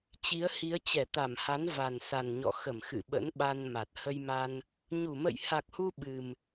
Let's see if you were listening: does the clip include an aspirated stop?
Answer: no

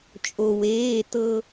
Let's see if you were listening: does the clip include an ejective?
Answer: yes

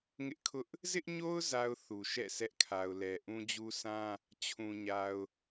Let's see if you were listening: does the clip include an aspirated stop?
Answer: yes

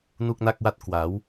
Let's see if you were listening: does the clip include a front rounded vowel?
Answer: no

